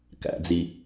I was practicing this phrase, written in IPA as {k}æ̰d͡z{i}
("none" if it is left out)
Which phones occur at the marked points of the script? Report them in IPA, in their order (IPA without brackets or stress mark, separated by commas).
k, i